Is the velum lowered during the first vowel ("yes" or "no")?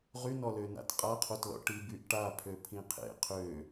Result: no